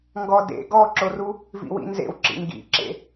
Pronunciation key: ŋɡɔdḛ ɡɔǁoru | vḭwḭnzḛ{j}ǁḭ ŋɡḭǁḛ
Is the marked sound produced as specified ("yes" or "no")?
no